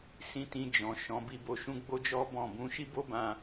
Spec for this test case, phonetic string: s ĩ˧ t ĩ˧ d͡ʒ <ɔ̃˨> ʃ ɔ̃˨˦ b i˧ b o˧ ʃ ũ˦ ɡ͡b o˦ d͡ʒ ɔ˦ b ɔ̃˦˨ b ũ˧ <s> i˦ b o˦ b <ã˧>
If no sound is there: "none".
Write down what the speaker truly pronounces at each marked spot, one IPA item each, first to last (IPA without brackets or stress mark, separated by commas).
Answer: ɔ̃˨, ʃ, ã˧